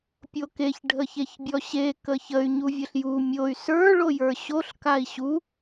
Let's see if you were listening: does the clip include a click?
no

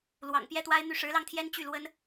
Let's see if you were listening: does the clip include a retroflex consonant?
yes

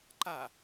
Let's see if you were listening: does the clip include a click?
yes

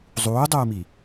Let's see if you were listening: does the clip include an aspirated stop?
no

